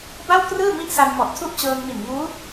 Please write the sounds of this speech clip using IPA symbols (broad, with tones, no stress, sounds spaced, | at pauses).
b a˥˩ w k r ɯː˥˩ m i˥˩ ʔ s a˧ n m ɔ˨˩ ʔ tʰ u˥˩ ʔ t͡ɕ ɤː˧ ŋ m i˨˩ n ŋ uː˦˥